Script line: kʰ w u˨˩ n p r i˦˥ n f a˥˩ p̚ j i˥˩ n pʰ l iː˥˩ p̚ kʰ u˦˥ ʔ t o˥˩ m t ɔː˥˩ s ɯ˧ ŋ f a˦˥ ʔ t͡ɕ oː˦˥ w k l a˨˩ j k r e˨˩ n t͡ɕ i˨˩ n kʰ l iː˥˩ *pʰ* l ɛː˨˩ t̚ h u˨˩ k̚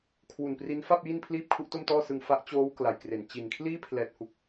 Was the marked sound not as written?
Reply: no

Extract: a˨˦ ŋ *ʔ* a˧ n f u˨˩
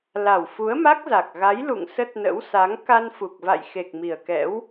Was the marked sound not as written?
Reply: yes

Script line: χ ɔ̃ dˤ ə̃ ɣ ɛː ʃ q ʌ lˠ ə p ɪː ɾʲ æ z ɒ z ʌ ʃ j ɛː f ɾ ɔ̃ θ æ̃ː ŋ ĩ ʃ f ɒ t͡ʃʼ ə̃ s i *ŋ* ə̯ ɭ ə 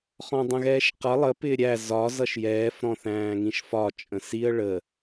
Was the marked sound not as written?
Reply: yes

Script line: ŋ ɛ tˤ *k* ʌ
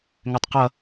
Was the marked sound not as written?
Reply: yes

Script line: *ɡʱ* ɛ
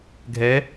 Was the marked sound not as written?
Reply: no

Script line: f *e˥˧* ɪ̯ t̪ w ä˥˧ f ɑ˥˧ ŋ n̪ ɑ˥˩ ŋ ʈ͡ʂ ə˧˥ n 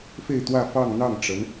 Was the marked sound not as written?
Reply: no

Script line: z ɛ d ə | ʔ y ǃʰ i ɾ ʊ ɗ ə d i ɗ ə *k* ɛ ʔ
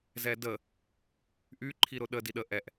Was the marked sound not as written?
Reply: yes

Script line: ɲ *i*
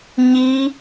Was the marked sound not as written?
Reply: no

